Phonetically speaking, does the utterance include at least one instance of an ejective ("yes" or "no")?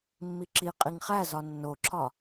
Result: yes